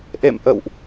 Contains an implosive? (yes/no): no